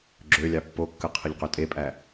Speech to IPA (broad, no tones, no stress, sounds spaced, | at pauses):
ɡ͡ǁ ø lʲ ɑ pː o kː ɯ qʰ ɯ ʎ q ø tʼ e pʼ æ